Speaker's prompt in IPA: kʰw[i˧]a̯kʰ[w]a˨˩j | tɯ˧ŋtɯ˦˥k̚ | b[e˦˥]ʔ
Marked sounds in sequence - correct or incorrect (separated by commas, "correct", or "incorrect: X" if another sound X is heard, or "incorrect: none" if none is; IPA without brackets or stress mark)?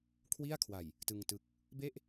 incorrect: i˥˩, correct, incorrect: e˥˩